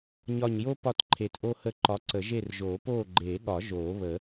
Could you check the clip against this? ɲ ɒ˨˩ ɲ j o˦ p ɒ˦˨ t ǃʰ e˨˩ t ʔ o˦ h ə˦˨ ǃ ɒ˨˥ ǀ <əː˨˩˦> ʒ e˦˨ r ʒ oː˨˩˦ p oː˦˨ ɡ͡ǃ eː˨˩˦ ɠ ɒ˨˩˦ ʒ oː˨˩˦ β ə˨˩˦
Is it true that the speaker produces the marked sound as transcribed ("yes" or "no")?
no